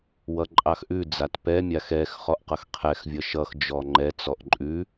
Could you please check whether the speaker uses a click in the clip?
yes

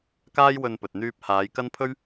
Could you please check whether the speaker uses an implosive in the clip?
no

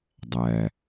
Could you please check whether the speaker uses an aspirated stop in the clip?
no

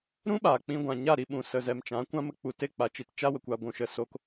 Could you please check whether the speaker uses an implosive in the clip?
yes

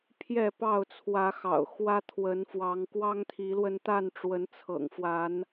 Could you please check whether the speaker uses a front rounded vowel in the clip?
no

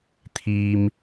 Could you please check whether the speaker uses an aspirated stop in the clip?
yes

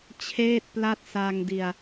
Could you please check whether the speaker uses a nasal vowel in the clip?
no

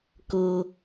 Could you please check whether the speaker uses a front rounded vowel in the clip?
no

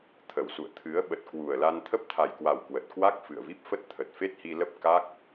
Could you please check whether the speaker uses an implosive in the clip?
yes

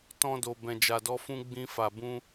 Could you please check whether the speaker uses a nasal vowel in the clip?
yes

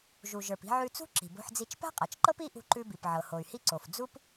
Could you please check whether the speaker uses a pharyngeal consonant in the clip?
yes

